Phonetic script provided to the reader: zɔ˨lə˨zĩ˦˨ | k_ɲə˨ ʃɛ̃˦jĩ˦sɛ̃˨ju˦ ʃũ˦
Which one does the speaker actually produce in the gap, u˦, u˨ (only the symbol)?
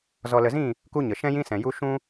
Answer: u˦